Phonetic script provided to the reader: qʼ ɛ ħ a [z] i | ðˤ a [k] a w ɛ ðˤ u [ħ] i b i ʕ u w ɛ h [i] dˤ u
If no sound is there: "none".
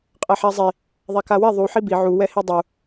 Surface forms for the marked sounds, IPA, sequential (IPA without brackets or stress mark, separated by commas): zˤ, k, ħ, i